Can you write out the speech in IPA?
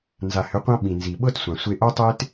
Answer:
n z a˨ h ʏ˨˦ qʷ ã˦ ɓ ĩ˨ n z i˨ ɓ ɤ˦ t sʷ ã˨ sʷ e˦ ʔ o˦ tˤ e˦ t

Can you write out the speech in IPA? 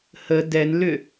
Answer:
h ə d ɛ n l ʏ

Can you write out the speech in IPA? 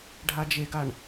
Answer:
ɖʱ a d͡ʒ e ɡ a ɳ

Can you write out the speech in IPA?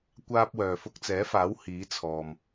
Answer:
kʷ aː˥ p̚ w œː˨ f ʊ˧ k̚ t͡s ɛː˨˥ f aː˨˥ w h iː˨˥ t͡sʰ ɔː˨ m

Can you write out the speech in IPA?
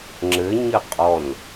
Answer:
ŋ͡ǁ ɘ ɲ ɘ qʼ ɔ n

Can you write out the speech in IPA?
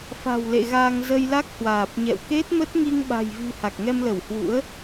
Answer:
f a̤˨˩ w l ḛ˧˨ ɣ a˧ ŋ z ə˧ j l a˦˥ k̚ h w aː˨˩ p̚ ɲ ɛ̰˧˨ w k e˦˥ t̚ m ə˦˥ t̚ ŋ i˧ ŋ ɓ a̤˨˩ j v i̤˨˩ h a˨˩ k̚ ŋ ɛ˧ m l ə˧˩ w h w ṵ˧˥ ə̯

